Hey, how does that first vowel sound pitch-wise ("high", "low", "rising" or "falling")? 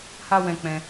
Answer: high